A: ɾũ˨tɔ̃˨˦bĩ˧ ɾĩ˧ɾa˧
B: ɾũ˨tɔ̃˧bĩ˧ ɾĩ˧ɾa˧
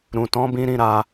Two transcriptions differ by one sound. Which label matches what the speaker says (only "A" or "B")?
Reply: A